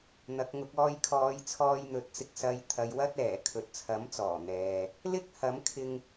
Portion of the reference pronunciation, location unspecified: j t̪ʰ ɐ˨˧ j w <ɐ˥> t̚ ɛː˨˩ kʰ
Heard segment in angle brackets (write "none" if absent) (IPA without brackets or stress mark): ɐ˥